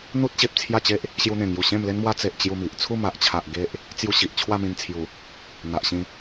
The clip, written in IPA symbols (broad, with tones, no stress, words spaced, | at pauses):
n̪u˦t̚ɕe˨p̚ t͡sʰja˥˧t͡ɕe˦ʔ | ɕju˧n̪ẽ˨˩ŋju˨˩ ɕẽ˥˧mle˦nmwa˦ t͡se˨ʔ t͡ɕju˥˧mi˨ʔ t͡sʰu˥˧ma˨ʔt͡ɕʰa˨ʔ ɡe˦ʔ | t͡sju˦ɕi˨ʔ t͡ɕʰwa˥˧mĩ˧nt͡sʰju˨˩ | n̪a˨ʔɕĩ˧